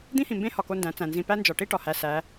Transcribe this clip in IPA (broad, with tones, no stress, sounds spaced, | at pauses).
d̪ ĩ˦ h ĩ˨ m b ẽ˦ h ɒ˨ k o˦ n d æ̃˨˦ t͡s æ̃˨ n z ĩ˨ p æ˦ n d͡ʒ ɒ˨ ʈ i˦ ʈ ɒ˨ h æ˨ s æ˨˦